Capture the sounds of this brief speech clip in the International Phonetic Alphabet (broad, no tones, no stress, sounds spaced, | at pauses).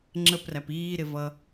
ŋ͡ǁ ə p r æ p iː ɾ ɪ v ʌ